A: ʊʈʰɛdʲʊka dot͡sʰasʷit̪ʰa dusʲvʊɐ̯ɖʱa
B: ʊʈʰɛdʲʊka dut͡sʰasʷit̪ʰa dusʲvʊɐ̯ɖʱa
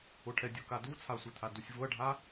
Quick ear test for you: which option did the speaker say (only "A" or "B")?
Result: B